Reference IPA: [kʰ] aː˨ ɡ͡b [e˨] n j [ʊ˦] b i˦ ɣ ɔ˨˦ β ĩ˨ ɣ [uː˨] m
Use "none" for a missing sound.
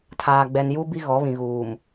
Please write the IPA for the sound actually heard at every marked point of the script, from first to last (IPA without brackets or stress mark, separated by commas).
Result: tʰ, ɛ˨, u˦, uː˨